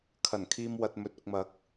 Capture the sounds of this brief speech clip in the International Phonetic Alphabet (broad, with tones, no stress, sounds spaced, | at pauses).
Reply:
kʰ ɐ˨˩ n kʰ iː˧ m w ɐ˨ t̚ m ɵ˨ t̚ ʊ˨ k̚ m ɐ˨˥ k̚